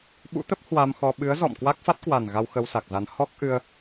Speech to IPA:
ɓṵ˧˥t̪ə˦˥p̚ hwa˧mxɔ˧ ɓɨ˨˦ə̯zɔ̰˧˨m kwa˦˥k̚ fa˦˥t̚kwa˨˩n ɣa˧w xə˧wsa˨˩k̚za˨˦n hɔ˦˥k̚ʔɨ˧ə̯

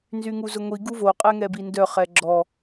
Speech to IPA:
nzyŋuzʊŋʷi ɡuvo qʼɛŋɛbindœ χɛɡ͡ǁɔ

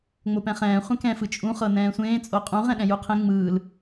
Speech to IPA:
ŋ͡mopɛ̃χɛ̃ː χʷɛ̃kɛ̃ fɯt͡ʃʼũ χɤnɛ̃ːsʷẽː t͡sʼoqʼũ ʁɛ̃ɗɛ̃juqʰẽ ŋ͡mɯːl

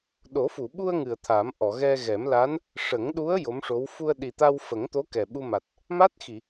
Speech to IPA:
ɗo˨˩˦fu˨˩˨ɓu˧ə̯ ŋɨ˨˩ə̯t̪ʰa˨˩˦m ʔɔ˨˩˨ɣɛ˧ɣɛ˨˩˦mla˧˥n | ʂə˨˩˦ŋɗu˧˥ə̯ jo˧˥mʂo˧˥w fu˧ə̯ɗi˨˩t̪a˧w fə˨˩˦ŋt̪o˧˥ kɛ˨˩ɓu˧ma˨˩t̚ | ma˦˥t̚xi˨˩˨

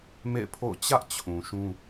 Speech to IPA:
mḛ˦˨ɪ̯pʰo̰˦˨ʊ̯ t͡ɕä˦ʔt͡ɕʰũ˨ ʃũ˦

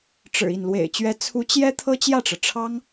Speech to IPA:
ʈ͡ʂɻ̩˨˩ i˥˩n lwḛ˨˩ɪ̯t͡ɕɥɛ˧˥ t͡sʰu˧˥t͡ɕjɛ˥ t̪ʰɤ˥t͡ɕjä˥˩ʈ͡ʂɤ˩ ʈ͡ʂʰɑ˥ŋ

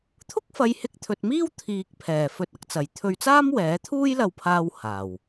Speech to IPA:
t̪ʰʊ˥k̚fɐ˨˧j hɪ˧k̚t̪ʰɵ˨t̚miː˥w t̪ʰiː˨k̚pʰɛː˨˩ fɵ˨t̚ɐ˨˥k̚t͡sɐ˨˩j t̪ʰɵ˧ɥt͡saː˥mwɛː˨˥t̪ʰuː˥j lɐ˧wpʰaː˧w haː˨˩w

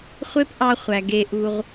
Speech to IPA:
χʷe˦pʔɑ˧χʷæ˨ ɡe˧ʔu˧ʁ

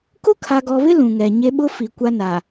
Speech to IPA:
kʊ˦kʰa˨ɡɔ˨βɪ˦ lũ˨ŋɛ˨ ɲe˦ ɓʊ˦fi˨ kʷa˦na˨

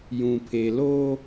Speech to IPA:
jũ˨pʰe˨loː˦

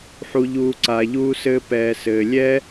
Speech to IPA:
ħu˨ʎuː˨ ǀaː˨ʎuː˧sɘː˧ pɛː˨sɘː˨ lʲɛ˦

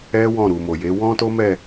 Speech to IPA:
ɛ˦ wɔ̃˦˨ɾu˨mo˨je˨˦ wɔ̃˦to˦mɛ˦˨

